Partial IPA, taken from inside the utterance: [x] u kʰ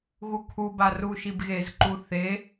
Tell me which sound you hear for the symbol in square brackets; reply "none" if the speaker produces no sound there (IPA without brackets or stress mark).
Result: ɣ